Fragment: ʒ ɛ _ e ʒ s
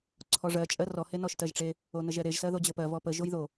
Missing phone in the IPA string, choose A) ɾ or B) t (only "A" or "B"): A